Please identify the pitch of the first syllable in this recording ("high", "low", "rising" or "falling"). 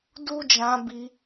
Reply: high